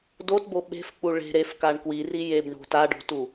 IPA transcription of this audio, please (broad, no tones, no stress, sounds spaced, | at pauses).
d o t b o ɓ e̤ f k͡p u ɭ e̤ ɾ e f k a ɳ k w i r i j e b ɳ o̤ t a ɖ o̤ t u